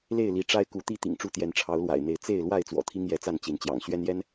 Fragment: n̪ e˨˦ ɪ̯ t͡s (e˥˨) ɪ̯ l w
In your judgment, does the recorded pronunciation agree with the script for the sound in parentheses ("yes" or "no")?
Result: yes